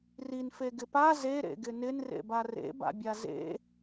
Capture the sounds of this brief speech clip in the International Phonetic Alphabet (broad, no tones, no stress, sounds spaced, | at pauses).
r i n f e ɡ ɪ p a z e ɾ ḛ ɡ ɪ n ɪ n r ḛ b a r ḛ b a̰ bʲ a z ḛ